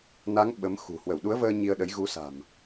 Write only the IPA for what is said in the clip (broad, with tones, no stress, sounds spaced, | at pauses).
n a˨˦ ŋ ɓ ə˨˦ m x ṳ˨˩ h w ə˧˩ w ɗ u˨˦ ə̯ v əː˧ ɲ i˧ ə̯ ɗ ə˨˦ j ɣ u˨˦ s a̤˨˩ m